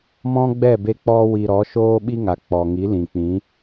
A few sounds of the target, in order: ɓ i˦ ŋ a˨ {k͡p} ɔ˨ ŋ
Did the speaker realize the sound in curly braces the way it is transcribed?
yes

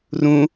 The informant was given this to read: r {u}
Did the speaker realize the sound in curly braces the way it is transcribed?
no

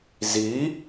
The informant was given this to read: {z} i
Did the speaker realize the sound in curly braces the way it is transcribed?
yes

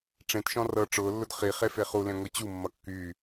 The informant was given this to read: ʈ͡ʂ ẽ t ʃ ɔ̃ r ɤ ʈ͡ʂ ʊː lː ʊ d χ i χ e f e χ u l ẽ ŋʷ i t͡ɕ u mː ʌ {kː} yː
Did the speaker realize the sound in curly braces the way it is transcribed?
yes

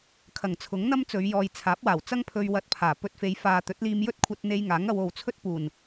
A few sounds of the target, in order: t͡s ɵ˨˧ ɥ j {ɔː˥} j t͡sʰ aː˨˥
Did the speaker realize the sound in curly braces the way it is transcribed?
no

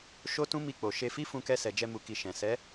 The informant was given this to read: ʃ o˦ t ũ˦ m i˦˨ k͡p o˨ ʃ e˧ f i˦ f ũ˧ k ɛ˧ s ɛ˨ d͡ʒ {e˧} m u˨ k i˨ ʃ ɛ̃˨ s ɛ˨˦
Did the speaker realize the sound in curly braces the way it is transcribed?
no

